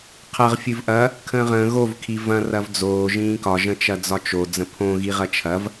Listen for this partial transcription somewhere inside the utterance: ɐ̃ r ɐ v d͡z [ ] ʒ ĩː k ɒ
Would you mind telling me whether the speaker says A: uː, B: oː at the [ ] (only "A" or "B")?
B